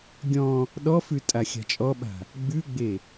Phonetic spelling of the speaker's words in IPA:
ɡʲ ɔ̃ | ɗ ɔ f ʉ tʼ a xʲ a̤ t͡ʃʼ ɔ ɓ a̤ | ɡ͡b ʉ ɡ͡b e

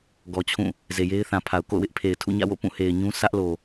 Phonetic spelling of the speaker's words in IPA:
ɡ ɔ˨ t͡ɕʰ ũ˦˨ | z e˨ j e˦ ɪ̯ θ ã˨ pʰ a˨ ʊ̯ k o̰˦˨ ʊ̯ w ɪ˦ ʔ pʰ e˨ ɪ̯ tʰ ṵ˦˨ ɲ ä̰˦˨ w o̰˦˨ p ũ˦˨ h e˨ ɪ̯ ɲ ũ˦ s ä˦ ʔ l o˨

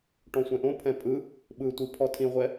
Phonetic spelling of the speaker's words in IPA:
ʈ ɔ̃ sʷ ɛ̃ ʔ õ pʰ ɛ̃ pʼ ɯ | ɓ ɯ tʷ i pʰ ɔ tʰ ĩ ʁʷ ɛ

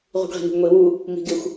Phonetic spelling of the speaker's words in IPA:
ʁ ṳ ɡ ʁ i̤ n ṳ ɡ ŋʷ i w u | m i̤ ɡ ɪ xʷ

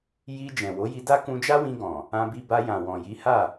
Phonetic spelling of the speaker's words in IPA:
j i˧ d͡ʒ ɛ̃˨ w o˨˦ j i˧ d a˦ k ũ˧ d͡ʒ a˦ w ĩ˧ ɡ ɔ̃˨ | ã˧ b i˧ b a˧ j ã˨ w ɔ̃˨ j i˨˦ h a˦˨

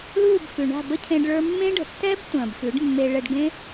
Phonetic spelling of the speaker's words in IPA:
l uː˦˨ b f ʉ˨ ɳ a̤˦˨ b ə˦ cʰ ẽ˧ ɖ ɭ ə˞˧ mː ẽ˦ ɖ ə̤˨ tː ɛ˦ b tʷ ə̃ː˨ b f ʉ˨˦ ɖ mː e˧ ɭ ɛ˧ ɖ ɡ ẽ˦

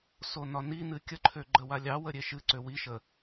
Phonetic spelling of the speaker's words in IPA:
s o n ɒ n i n ɨ kʲ ə ǃʰ ø ɡ͡ǃ ə w a lʲ ɑ w ə ɾʲ e ʃ ɨ ǀ ø w i ʃ ə

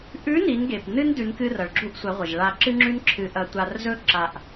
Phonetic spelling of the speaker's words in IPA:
ʔ ʉ˧˥ n i˩˧ n ɡ e˩ p n ɨ˥ n d ʉ˩˧ n k ɨ˧ r ɐ˩ ɭ ɡ͡ǁ u˧ ʔ sʷ ɐ˩˧ ʁʷ ɐ˩ ʒ ɭ a˧ ǁ ɨ˥ ŋ͡ǁ ʉ˥ n ǁʰ ɨ˧ ʔ ɐ˧ tʷ a˧ r z ɵ˥ ǁ a˧ ʔ

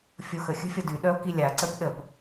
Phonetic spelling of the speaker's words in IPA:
fʲ o x ə xʲ ə̤ fʲ ɔ d y ɗ œ o̯ k i lʲ a ǀ ə p ɗ ə p

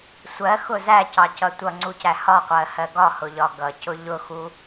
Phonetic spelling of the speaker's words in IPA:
sʷ ɜ x ʊ z æ c ɑ c ʌ tʷ ʌ ŋ͡ǀ u c æ h ɒ qʷ ɜ h ɜ ɡ ɒ h ʊ ʎ ɒ ɡ ʌ c ʊ ʎ ʊ x u

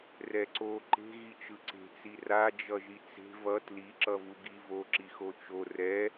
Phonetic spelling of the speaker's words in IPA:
r ɛ ǀ o ǃ e̤ ɣ i t͡ʃ ɯ ǀ e̤ t͡s i r a d͡ʒ ʌ ʒ i t͡s e̤ v ʌ t l i ǁ ʌ v u ɡ i v o ǁ i x o t͡ʃ o r ɛ

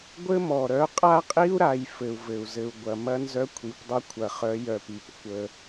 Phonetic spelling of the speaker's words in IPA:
ɡʷ ɘ˦ m ɔ˨ ɾ œ˨˦ qʼ a˦ qʼ i˦ u̯ ɾ a˨ j f ɘ˨ u̯ v ɘ˨ u̯ z ɘ˨ u̯ ɡʷ ɐ˨ m ɐ˦ n z œ˦ kʷʰ i˨ p dˤ ɐ˦ kʷʰ ɐ˨ χ œ˨˦ j œ˨ p i˨ p kʷ ə˦

